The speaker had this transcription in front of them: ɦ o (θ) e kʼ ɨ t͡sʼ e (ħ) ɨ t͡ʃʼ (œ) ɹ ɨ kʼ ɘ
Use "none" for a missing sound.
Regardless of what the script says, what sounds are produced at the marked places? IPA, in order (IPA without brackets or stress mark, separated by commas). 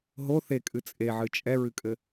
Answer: θ, ʕ, ɛ